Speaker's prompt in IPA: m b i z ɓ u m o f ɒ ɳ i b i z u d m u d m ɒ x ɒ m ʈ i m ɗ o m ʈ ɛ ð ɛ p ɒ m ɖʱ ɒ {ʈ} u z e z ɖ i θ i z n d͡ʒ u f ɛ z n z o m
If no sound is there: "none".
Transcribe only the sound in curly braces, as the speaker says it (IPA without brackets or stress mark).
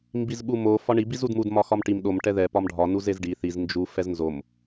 n